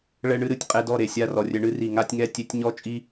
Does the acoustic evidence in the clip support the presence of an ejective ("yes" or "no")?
yes